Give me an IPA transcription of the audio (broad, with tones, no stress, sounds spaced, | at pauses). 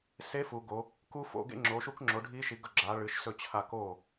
s e˦˥ f u˨˦ ɡ o˨˦ | k u˦˥ f o̰˨˦ ɡ ḛ˦˥ ŋ͡ǁ o˨˦ ʃ u˦˥ k ŋ͡ǁ o˨˦ ɖʱ i˦˥ ʃ i˨˦ ɡ ɵ˥˨ ɡ͡ǁ a˨˦ ɭ ɨ˨˦ ʃ s ɵ˥˨ t͡ɕʰ a˥˨ k o˥˨